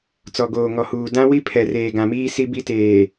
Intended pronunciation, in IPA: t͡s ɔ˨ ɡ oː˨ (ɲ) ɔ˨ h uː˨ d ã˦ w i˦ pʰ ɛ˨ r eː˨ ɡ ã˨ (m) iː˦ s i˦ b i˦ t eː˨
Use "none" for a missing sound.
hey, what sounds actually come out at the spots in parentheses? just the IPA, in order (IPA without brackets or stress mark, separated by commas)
ŋ, m